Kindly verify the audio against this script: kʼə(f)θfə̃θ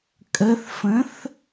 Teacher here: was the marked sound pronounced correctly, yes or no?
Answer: no